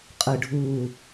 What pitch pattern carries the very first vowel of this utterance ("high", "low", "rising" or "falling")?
low